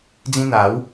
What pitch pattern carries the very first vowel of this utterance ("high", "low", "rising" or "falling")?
high